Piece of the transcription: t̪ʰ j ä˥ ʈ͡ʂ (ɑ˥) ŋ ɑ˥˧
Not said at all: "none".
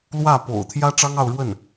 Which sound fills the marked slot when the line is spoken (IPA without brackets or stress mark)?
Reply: ɑ˥